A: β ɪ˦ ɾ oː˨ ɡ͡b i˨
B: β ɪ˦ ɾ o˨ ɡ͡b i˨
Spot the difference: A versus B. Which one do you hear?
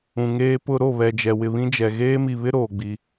A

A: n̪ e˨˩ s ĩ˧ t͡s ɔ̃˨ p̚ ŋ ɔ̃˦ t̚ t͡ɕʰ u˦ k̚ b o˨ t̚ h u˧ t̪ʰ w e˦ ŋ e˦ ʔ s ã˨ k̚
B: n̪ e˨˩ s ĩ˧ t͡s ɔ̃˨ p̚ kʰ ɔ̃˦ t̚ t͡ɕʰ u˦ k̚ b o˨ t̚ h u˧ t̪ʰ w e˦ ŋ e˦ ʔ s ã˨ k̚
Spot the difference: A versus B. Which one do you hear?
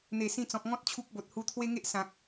A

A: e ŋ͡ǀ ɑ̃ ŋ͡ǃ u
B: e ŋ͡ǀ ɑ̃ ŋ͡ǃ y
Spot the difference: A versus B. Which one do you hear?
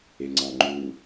A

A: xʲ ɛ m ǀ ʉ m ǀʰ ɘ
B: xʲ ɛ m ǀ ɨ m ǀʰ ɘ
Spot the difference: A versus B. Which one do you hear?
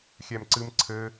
B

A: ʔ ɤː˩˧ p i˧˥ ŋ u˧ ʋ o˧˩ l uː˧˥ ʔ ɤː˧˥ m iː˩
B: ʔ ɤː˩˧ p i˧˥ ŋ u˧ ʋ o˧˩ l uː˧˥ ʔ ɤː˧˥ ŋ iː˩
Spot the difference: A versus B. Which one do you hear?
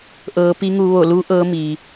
A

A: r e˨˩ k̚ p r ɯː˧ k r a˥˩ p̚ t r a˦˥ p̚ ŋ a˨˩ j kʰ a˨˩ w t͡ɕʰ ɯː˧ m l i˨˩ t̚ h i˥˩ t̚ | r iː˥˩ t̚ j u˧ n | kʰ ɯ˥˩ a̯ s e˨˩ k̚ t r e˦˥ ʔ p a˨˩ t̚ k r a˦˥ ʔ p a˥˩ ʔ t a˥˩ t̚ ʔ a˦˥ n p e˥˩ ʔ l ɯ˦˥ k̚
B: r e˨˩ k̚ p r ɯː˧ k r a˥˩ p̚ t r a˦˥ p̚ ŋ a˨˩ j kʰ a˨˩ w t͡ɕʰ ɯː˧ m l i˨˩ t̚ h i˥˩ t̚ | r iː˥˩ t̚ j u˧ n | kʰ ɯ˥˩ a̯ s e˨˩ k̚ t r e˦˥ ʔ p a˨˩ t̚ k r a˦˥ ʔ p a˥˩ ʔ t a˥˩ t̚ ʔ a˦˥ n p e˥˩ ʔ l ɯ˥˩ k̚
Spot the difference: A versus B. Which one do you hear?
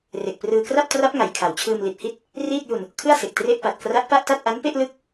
A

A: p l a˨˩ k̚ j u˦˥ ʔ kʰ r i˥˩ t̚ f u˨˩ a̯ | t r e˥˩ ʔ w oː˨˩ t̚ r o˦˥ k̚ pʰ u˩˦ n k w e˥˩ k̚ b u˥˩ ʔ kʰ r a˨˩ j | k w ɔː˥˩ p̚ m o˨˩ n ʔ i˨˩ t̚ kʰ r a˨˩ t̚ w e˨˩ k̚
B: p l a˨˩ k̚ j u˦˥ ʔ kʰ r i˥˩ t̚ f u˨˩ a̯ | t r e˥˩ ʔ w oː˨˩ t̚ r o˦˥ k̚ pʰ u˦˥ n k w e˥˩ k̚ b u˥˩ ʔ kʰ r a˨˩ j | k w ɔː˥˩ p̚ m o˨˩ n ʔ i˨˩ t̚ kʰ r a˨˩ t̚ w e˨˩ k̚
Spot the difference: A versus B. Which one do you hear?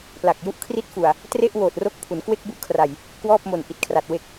A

